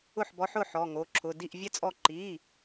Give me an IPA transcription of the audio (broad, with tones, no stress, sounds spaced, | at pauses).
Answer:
ʊ˥˩ ħ b ɔ˨˥ ħ ʊ˩˧˩ ħ ɔ˩˧˩ ŋ o˩˧˩ ǁʰ ʊ˩˧˩ d i˥˩ ʔ vʲ ɛ˥ t͡sʼ ɔ˥˩ ǃ i˩˧˩